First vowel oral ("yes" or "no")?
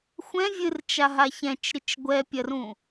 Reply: no